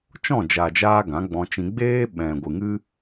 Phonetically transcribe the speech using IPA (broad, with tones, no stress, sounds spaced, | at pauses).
t͡ʃ ɔ̃˦˨ d͡ʒ a˨ d͡ʒ aː˧ ɡ ã˨˦ ɡ͡b ɔ̃˧ t͡ʃ ĩ˧ ɡ͡b eː˦ ɓ ɛ̃˨ ɡʷ ɨ˨ ŋ ɨ˦